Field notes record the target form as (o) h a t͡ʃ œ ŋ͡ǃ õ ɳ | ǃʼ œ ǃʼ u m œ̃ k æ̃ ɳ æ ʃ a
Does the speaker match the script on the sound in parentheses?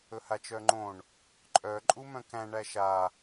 no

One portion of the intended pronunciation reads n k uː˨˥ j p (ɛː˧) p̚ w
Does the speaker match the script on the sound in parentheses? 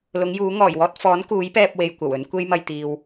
yes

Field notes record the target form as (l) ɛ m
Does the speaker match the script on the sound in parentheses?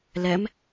yes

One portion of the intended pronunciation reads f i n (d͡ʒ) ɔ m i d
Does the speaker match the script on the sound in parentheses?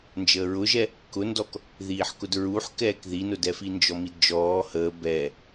yes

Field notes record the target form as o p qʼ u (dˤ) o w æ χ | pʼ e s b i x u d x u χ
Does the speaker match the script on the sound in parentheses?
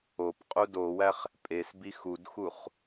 no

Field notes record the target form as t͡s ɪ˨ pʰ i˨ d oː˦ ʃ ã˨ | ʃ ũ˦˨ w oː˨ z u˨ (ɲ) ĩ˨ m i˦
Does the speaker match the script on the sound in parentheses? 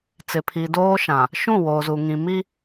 no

